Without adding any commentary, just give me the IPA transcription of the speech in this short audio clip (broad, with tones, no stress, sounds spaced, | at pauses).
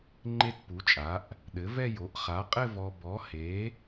ŋ͡ǃ e˥˧ t p u˩˥ t͡ʃʼ a˩˥ ʔ | ɗ ɘ˩˥ v ɛ˥˧ j o˩˥ ʔ χ a˩˥ qʼ ɘ˥˧ v ɔ˨ b ɔ˩˥ h e˩˥